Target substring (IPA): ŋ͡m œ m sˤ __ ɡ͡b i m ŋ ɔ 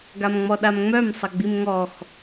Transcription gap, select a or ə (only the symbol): ə